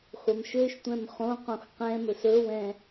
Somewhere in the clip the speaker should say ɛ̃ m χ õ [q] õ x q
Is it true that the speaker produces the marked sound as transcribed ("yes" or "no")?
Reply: yes